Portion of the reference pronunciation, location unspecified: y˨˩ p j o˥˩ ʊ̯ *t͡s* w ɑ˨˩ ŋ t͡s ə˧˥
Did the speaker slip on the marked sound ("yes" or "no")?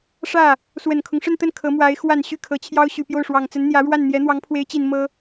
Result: yes